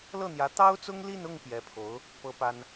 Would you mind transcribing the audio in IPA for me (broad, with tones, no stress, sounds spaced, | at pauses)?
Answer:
l ɤ˥˩ n̪ j ä˧˥ t̪ ɑ˥ ʊ̯ t͡s ʊ˥ ŋ l i˥˧ n ʊ˥˩ ŋ p j ɛ˧˥ pʰ o˧˥ ʊ̯ | p ɤ˥ p a˥ n